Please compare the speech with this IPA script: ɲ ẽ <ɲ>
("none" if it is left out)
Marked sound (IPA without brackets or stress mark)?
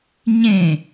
none